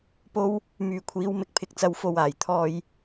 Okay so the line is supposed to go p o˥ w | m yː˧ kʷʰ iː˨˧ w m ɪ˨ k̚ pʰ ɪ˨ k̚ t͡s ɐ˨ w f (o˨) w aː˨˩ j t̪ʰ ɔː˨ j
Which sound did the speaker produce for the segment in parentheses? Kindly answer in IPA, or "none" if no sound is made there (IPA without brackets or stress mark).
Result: o˨